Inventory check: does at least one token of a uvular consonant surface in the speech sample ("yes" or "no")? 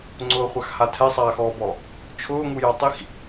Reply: yes